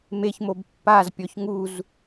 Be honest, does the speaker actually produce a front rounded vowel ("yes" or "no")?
no